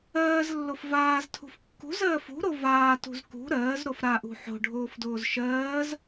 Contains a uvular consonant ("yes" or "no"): no